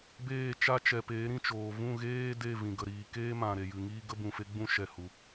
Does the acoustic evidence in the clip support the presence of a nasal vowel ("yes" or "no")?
yes